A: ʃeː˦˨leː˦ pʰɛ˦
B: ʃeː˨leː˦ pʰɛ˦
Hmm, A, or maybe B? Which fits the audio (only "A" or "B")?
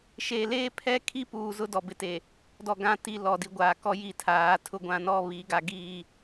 B